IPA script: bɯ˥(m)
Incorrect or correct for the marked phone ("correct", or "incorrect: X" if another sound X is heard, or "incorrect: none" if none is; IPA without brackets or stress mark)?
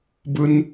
incorrect: n